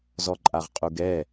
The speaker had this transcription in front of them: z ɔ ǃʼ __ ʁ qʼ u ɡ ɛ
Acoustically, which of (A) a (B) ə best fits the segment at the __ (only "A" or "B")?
A